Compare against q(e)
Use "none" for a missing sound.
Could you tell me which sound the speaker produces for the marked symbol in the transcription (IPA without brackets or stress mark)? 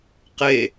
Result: e